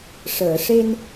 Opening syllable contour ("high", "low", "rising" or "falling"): low